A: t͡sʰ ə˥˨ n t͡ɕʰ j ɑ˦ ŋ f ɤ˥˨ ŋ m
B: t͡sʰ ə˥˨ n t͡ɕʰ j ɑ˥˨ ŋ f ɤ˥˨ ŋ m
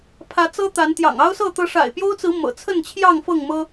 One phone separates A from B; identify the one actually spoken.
B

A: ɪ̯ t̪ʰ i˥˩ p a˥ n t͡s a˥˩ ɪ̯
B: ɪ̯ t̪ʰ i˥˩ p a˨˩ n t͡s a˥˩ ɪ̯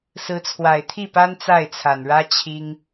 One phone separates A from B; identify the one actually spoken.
A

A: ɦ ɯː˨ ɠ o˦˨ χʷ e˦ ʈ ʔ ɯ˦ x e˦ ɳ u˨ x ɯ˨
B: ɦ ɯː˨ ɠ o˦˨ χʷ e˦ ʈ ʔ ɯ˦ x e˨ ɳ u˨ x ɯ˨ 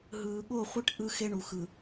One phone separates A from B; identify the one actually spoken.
A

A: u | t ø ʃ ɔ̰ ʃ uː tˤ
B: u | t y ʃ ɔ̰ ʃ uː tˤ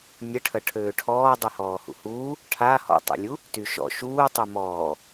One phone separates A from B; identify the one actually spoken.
B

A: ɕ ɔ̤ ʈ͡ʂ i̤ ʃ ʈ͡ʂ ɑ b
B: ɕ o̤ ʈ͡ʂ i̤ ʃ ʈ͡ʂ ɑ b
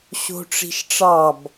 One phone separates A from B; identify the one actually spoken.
B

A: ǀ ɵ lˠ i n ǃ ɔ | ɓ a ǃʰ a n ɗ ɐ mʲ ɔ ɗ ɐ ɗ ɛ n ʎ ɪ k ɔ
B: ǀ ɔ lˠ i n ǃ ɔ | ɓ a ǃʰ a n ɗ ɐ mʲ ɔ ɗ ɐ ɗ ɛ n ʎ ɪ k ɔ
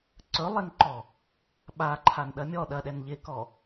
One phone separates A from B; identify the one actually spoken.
A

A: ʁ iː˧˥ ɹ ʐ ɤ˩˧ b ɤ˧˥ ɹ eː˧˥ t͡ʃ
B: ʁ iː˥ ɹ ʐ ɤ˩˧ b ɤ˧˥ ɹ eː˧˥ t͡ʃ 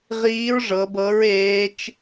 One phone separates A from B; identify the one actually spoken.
A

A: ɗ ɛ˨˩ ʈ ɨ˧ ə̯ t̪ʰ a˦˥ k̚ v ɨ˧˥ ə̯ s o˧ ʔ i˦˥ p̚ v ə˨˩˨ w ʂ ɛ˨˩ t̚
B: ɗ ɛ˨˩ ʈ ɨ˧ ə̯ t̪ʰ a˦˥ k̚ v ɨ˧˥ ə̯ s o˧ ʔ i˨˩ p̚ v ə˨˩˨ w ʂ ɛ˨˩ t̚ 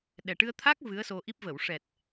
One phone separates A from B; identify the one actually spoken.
A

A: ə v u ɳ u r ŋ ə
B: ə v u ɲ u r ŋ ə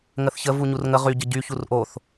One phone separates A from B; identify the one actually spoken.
B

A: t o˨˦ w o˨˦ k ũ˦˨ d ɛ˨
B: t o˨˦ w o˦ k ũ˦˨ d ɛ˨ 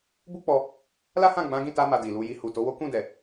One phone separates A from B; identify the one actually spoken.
B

